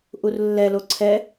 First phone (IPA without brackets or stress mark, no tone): ʔ